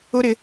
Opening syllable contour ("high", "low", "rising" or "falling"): high